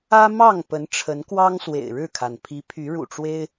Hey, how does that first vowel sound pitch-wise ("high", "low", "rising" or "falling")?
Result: high